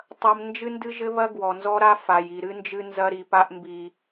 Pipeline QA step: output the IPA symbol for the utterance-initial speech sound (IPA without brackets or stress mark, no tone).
tˤ